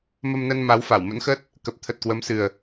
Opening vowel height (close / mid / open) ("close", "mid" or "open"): mid